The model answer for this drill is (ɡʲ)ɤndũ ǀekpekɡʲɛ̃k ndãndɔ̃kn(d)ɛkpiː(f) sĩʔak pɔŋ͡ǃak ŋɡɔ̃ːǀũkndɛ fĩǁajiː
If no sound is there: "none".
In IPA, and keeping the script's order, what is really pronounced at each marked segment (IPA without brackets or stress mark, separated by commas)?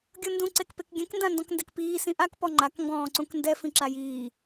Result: ɡʲ, d, none